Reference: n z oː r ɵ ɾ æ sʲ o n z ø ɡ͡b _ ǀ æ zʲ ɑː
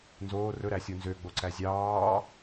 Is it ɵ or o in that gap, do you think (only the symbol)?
o